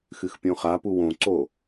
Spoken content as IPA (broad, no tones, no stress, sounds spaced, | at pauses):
x ɨ x pʲ õ χ a p u w õ ǀ o